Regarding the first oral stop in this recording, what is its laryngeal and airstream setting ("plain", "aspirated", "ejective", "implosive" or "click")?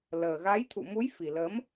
aspirated